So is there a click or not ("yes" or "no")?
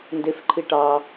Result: yes